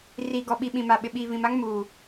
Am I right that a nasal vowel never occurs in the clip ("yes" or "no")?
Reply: no